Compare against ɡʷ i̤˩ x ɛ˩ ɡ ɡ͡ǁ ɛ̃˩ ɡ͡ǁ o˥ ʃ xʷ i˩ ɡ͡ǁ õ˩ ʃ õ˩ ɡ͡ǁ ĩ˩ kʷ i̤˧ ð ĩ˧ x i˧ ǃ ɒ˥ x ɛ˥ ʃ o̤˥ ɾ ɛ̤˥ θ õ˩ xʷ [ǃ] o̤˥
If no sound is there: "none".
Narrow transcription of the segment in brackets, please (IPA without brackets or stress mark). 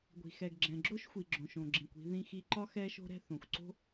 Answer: ǀ